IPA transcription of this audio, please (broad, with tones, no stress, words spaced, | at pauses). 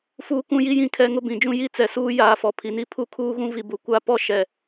fuː˦kũ˦ji˦jĩ˦˨ kʰɛ˦ŋʊ˦ bĩ˨d͡ʒũ˦ ji˦t͡sɛ˨suː˦ jaː˦fɔ˨ pʰi˨ni˦ pʰu˦kʰuː˦ɣũ˦ vi˨bu˨ kʷa˦pɔ˦ ʃɛ˨